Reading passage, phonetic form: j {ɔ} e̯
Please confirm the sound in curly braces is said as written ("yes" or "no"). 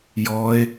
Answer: yes